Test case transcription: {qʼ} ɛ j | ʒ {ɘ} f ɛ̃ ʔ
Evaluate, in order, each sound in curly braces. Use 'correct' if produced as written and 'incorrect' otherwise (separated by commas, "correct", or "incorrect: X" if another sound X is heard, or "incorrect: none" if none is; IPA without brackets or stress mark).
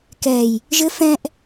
incorrect: k, correct